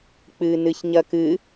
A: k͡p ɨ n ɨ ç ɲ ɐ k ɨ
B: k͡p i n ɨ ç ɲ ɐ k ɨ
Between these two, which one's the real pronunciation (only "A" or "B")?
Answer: A